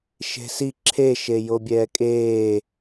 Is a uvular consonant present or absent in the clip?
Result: absent